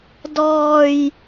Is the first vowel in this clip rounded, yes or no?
yes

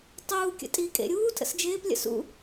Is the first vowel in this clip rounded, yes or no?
yes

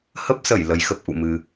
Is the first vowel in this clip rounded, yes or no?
no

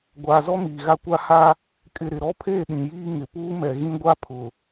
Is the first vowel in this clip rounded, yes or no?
no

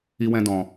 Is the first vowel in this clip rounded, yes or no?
no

